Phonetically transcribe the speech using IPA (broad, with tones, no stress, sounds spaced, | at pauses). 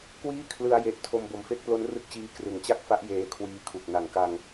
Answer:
k w iː˥˩ kʰ l ɯ˧ a̯ j e˨˩ ʔ tʰ o˧ m b o˨˩ m f e˥˩ k̚ p l o˦˥ n r ɯ˦˥ k̚ t͡ɕ iː˧ k r ɯ˩˦ ŋ t͡ɕ a˥˩ k̚ f a˦˥ ʔ j eː˧ kʰ w iː˧ kʰ u˨˩ k̚ n a˩˦ ŋ k a˧ ŋ